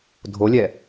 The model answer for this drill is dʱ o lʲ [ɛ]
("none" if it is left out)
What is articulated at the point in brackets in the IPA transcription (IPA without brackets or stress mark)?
ɛ